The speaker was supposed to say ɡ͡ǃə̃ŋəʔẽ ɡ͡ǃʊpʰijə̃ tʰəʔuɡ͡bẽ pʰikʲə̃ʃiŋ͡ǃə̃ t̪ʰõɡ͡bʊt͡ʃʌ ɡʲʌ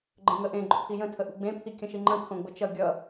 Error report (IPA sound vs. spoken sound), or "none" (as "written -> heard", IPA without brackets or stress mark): none